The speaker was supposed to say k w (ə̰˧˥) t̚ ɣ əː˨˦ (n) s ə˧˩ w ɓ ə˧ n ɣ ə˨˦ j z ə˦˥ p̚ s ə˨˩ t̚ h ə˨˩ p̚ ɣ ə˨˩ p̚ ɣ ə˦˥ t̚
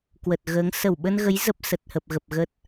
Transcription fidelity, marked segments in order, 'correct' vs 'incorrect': incorrect: ə˨˩, incorrect: ŋ

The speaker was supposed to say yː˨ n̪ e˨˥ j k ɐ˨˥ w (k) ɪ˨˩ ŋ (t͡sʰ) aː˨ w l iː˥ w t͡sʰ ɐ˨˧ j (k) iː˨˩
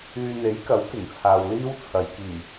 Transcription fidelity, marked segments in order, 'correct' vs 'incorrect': correct, correct, correct

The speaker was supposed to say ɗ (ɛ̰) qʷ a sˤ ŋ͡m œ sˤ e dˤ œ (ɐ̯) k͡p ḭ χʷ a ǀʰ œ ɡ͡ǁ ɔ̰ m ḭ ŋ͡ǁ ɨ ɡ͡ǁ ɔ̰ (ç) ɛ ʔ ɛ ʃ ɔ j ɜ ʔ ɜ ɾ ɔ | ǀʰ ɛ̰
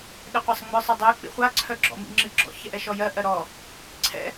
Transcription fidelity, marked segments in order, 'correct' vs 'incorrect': incorrect: ɛ, incorrect: e̯, correct

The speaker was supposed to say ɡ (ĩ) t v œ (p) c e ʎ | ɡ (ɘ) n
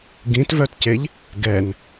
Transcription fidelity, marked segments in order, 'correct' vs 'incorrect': correct, incorrect: t, incorrect: ɛ

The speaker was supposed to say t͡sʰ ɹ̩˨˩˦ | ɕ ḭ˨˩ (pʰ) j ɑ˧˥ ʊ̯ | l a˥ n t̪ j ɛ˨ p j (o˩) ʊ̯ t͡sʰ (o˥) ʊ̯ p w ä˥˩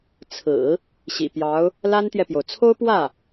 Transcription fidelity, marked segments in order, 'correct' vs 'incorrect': incorrect: p, correct, correct

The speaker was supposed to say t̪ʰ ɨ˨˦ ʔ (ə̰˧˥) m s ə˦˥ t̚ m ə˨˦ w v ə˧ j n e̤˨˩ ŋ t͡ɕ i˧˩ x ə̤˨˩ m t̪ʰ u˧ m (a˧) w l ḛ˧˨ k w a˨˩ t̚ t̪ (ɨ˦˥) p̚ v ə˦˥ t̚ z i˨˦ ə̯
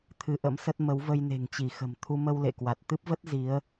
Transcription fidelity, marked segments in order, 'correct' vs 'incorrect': correct, incorrect: ə˧, correct

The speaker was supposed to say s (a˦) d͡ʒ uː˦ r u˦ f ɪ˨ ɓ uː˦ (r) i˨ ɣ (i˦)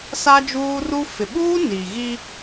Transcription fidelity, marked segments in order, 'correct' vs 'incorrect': correct, incorrect: n, correct

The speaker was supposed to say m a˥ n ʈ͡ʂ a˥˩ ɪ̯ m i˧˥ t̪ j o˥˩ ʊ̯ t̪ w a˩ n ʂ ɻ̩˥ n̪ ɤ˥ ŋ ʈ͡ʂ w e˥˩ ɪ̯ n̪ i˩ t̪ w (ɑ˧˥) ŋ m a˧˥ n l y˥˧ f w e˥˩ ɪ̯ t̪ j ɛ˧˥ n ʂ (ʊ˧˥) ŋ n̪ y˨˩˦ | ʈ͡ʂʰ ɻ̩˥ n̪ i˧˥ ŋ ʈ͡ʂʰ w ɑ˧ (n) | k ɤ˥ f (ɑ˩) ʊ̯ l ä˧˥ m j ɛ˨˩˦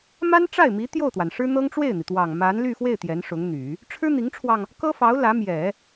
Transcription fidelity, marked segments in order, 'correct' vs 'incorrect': incorrect: ɑ˨˩, correct, incorrect: ŋ, incorrect: ɑ˧˥

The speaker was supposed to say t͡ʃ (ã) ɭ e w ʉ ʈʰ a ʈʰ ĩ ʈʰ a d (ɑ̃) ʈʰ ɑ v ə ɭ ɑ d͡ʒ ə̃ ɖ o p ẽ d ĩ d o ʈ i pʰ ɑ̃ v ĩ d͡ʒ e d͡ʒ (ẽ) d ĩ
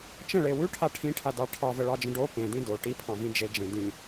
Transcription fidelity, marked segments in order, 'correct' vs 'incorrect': incorrect: ə̃, incorrect: ɑ, correct

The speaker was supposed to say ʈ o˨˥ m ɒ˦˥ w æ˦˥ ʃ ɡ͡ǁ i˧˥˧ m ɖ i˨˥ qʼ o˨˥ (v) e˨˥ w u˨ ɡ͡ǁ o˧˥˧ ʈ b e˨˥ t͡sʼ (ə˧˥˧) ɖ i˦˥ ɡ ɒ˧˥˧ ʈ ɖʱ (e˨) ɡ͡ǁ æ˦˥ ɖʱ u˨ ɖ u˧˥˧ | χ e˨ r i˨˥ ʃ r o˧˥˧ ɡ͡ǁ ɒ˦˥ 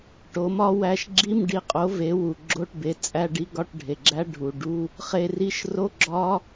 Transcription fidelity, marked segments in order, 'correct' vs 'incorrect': correct, incorrect: æ˧˥˧, correct

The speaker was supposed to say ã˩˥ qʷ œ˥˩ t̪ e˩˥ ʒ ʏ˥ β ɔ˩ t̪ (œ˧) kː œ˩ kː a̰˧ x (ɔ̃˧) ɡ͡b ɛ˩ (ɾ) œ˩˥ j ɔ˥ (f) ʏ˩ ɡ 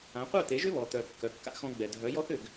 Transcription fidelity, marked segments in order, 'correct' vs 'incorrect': incorrect: œ˩, correct, incorrect: dʱ, incorrect: θ

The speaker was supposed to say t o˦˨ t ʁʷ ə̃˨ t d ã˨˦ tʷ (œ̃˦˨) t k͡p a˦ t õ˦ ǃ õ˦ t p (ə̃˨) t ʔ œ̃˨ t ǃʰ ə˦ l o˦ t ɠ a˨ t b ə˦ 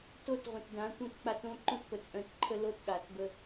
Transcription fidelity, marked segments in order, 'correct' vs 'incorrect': correct, incorrect: ə˨

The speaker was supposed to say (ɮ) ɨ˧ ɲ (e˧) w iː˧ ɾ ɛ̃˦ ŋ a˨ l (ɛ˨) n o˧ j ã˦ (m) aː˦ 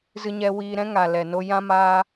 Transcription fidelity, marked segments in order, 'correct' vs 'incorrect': incorrect: z, incorrect: ɛ˧, correct, correct

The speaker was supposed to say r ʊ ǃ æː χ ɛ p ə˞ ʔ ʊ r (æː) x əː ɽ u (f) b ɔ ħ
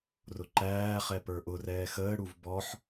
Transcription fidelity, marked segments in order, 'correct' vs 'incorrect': incorrect: ɛː, incorrect: v

